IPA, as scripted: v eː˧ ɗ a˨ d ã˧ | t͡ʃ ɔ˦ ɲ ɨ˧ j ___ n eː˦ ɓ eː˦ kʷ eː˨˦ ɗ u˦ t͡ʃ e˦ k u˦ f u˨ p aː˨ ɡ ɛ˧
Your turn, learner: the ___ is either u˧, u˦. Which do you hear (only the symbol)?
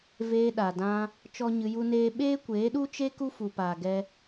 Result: u˦